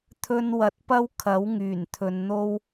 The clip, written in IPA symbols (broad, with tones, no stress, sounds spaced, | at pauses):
t̪ʰ ɵ˧ n w ɐ˨ t̚ p ɐ˥ w kʰ ɐ˨˥ w ŋ yː˨˩ n t̪ʰ ɵ˨ n n̪ o˥ w